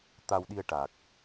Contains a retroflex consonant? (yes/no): yes